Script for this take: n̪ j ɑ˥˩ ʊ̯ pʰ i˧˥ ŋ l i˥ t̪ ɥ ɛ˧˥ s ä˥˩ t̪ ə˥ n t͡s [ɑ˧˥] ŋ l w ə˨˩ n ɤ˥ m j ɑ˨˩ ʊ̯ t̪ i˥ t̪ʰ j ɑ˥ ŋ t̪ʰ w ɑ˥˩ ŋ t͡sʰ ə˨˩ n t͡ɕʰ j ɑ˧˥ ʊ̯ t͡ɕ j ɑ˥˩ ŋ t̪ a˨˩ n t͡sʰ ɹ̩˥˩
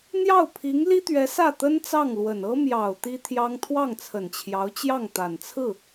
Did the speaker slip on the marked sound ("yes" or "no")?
yes